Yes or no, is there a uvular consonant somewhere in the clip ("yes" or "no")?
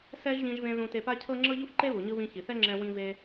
no